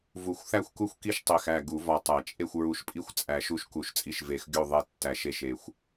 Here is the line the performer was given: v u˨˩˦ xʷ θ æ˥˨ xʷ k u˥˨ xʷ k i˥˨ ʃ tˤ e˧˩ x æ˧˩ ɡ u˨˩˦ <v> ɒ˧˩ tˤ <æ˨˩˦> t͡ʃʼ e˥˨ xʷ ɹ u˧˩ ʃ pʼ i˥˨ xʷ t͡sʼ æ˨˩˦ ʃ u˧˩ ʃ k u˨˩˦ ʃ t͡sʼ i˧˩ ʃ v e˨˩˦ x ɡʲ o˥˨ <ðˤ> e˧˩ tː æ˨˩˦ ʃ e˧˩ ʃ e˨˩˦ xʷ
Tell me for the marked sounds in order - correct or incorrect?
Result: correct, correct, correct

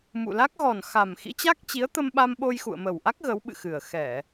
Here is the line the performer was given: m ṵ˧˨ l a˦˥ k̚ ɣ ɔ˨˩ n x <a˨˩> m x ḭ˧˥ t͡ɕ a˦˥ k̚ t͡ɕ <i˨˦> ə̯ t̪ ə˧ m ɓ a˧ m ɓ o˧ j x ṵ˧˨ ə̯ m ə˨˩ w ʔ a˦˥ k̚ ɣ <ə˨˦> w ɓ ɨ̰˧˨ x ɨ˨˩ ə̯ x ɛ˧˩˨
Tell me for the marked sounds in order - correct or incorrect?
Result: correct, correct, correct

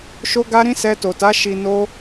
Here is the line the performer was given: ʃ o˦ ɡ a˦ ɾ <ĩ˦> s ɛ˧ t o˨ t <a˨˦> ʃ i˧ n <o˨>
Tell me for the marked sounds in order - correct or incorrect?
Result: correct, correct, incorrect: o˦

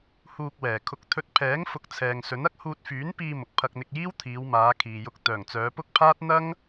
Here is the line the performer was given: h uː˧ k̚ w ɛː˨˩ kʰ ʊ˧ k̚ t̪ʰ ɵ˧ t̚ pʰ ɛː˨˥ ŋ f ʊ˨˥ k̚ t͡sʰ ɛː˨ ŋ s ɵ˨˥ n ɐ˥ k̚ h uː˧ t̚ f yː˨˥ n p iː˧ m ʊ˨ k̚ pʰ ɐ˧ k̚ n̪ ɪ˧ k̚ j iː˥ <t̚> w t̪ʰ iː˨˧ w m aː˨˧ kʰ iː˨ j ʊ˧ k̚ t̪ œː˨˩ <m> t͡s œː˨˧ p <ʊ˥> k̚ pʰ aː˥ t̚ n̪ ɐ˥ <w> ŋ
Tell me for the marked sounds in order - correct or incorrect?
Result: incorrect: none, incorrect: ŋ, correct, incorrect: none

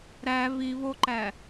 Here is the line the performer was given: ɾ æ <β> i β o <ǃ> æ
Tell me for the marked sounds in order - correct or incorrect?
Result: correct, correct

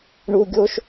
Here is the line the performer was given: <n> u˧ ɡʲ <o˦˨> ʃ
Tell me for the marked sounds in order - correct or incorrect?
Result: incorrect: ɳ, incorrect: o˦

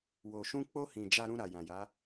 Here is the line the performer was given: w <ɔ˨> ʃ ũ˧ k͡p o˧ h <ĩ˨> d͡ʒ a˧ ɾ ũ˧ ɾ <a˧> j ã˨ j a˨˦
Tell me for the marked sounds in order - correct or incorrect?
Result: incorrect: o˨, correct, incorrect: a˨

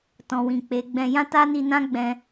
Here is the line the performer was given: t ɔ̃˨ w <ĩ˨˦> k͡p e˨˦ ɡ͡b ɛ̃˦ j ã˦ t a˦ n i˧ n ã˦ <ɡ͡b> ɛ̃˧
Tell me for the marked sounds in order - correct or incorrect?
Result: incorrect: ĩ˨, correct

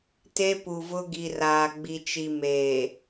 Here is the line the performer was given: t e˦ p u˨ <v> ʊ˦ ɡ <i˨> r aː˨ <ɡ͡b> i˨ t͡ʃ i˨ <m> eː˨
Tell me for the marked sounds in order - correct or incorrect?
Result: correct, correct, correct, correct

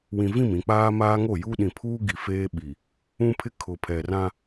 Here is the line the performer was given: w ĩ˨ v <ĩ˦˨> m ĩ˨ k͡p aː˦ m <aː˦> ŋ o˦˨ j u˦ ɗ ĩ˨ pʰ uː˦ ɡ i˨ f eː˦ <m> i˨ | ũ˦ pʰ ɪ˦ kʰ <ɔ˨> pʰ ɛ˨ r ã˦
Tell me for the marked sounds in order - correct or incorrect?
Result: correct, correct, incorrect: ɓ, incorrect: ʊ˨

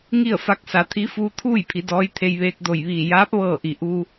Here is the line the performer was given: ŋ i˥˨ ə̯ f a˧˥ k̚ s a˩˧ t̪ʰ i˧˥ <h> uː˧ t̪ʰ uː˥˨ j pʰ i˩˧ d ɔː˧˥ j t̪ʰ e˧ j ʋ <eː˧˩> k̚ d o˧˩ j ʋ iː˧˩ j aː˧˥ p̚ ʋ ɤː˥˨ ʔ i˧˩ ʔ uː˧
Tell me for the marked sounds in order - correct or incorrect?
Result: incorrect: f, incorrect: eː˧

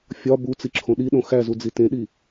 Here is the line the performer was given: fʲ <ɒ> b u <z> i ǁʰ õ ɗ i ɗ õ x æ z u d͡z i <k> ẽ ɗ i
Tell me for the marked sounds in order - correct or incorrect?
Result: correct, incorrect: t͡s, incorrect: t

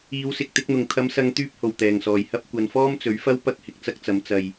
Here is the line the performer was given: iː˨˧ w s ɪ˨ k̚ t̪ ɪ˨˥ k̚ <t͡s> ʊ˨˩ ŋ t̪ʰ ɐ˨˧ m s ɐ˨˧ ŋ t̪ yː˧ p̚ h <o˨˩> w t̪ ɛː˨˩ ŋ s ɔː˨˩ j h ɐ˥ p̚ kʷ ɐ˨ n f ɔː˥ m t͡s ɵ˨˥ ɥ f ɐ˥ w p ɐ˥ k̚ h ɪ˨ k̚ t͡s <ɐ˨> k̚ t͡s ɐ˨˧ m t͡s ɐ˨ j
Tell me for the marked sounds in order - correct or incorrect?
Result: incorrect: n̪, correct, incorrect: ɐ˥

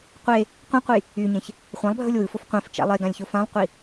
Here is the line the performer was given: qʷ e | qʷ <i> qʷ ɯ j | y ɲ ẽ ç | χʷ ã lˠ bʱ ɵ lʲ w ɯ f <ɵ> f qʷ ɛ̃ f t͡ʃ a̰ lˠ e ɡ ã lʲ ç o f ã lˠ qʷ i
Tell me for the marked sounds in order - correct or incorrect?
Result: incorrect: ĩ, incorrect: o

